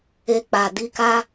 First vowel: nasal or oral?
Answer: oral